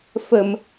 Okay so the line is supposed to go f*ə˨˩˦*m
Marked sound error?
yes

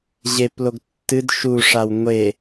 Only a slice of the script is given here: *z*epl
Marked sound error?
yes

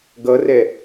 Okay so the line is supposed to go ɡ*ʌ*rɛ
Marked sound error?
no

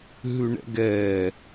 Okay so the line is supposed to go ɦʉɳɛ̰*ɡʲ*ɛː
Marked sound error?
yes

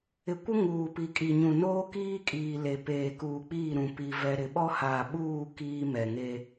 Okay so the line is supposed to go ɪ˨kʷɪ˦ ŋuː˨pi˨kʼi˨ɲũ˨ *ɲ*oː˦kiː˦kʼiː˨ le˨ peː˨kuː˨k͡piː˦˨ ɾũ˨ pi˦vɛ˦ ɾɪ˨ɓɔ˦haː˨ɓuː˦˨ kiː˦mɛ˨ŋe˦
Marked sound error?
yes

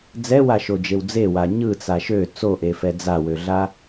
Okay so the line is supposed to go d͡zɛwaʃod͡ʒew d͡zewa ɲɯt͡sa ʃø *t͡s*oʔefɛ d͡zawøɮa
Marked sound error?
no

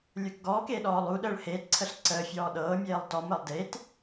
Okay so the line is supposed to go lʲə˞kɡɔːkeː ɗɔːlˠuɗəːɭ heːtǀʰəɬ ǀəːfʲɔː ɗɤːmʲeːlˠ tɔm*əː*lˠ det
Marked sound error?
no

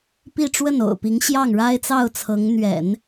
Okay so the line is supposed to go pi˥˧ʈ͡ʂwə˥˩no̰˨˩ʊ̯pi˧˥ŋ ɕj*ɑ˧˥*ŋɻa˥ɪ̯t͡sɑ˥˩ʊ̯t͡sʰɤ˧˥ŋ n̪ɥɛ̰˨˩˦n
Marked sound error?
yes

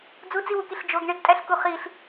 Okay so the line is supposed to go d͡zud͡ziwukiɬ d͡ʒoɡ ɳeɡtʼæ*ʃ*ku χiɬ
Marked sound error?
yes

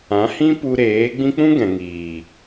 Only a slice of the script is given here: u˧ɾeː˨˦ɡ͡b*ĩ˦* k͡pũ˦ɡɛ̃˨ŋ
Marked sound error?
no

